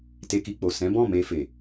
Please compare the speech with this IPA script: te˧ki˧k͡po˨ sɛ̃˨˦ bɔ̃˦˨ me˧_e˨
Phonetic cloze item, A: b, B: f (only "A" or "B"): B